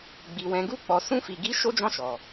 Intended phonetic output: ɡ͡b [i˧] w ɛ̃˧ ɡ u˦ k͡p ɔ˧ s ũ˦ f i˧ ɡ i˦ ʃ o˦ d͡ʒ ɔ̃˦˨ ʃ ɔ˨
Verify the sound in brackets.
correct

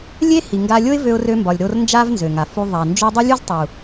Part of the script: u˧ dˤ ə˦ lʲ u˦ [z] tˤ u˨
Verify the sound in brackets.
correct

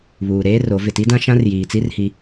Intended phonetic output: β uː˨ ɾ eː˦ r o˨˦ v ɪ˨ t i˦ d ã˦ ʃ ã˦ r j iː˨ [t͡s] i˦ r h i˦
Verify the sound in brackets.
correct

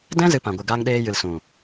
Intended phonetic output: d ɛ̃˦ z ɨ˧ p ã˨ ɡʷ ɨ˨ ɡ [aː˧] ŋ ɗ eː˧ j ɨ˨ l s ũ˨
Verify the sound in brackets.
correct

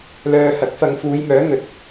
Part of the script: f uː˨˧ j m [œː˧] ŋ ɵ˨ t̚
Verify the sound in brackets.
incorrect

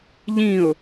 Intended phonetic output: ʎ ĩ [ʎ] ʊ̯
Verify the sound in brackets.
incorrect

